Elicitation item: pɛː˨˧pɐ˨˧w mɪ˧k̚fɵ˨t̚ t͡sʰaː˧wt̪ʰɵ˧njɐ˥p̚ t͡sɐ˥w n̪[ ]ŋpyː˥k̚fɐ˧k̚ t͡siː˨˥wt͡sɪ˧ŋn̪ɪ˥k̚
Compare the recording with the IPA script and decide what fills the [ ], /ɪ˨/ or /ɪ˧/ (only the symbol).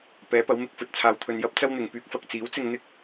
ɪ˨